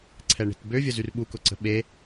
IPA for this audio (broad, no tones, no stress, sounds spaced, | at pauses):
ǀʰ ɛ ɳ e̤ t b ø vʲ ə z y r ɓ u k ʊ ǀ ə̤ ɓ e